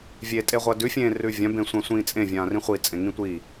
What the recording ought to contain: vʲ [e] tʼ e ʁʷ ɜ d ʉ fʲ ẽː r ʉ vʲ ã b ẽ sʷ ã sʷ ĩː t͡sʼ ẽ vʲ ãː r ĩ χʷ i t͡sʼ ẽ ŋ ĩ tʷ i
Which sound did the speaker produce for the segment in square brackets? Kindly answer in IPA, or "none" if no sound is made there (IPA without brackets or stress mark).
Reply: e